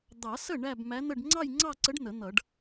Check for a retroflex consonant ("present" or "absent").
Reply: present